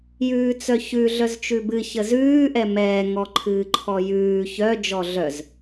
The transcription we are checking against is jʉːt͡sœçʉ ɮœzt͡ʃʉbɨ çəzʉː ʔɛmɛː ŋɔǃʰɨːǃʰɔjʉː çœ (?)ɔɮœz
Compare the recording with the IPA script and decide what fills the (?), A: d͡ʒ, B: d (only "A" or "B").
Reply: A